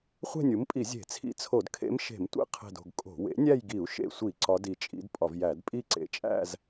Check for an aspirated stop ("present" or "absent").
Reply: present